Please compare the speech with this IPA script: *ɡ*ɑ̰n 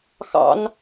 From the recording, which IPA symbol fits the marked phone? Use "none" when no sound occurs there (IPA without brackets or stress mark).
x